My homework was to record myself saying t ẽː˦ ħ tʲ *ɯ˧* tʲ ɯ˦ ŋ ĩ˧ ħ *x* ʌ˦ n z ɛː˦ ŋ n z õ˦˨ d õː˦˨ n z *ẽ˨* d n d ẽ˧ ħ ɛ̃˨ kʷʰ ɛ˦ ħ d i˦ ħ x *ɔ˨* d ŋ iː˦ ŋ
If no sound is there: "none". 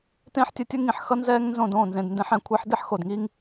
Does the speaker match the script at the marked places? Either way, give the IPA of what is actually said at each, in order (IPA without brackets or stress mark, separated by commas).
ɯ˧, x, ẽ˨, o˨